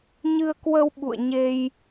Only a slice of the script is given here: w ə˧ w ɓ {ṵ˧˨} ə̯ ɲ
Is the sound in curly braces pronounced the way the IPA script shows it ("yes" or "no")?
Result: yes